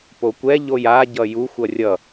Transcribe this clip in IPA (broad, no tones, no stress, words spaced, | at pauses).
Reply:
pokʷɛ ʎoja ɟʌju xʷʌrʲʌ